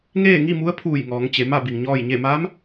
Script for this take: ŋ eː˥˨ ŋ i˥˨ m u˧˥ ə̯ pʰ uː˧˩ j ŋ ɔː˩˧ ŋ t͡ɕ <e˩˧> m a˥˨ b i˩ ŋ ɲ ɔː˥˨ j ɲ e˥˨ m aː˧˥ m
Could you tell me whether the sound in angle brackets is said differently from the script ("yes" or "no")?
no